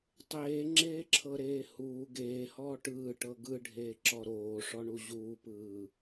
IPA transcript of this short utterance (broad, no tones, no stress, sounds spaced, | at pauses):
tˤ eː ŋ͡ǁ eː ǁʰ ɤ ɾ eː h uː ɡ eː h ɔː ʈ ɯː ʈ ɤ ɡ ɯ ɖʱ eː ǁ ɔ ɾ oː ʂ ɔ ɳ u ʑ uː p ɯː